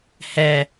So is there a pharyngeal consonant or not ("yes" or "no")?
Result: no